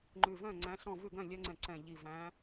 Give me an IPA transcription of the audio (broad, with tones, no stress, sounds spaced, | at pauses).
ŋ͡ǃ ʉ˨˩ v œ̃˥˩ ŋ͡ǀ æ̃˨˦ ɬ ɔ̃˥˩ v ʉ˥˩ ɡ œ̃˥˩ lʲ œ˦ ŋ͡ǀ ɛ̃˨˩ ǀ ɛ̃˨˩ ʎ i˨˩ v æ̃˨˦